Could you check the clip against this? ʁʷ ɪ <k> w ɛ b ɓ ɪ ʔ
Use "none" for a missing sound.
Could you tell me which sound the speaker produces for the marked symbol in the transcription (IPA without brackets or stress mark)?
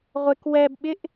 k